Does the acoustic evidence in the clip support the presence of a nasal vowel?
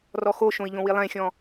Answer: yes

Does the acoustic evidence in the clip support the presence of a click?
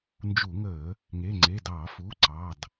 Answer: yes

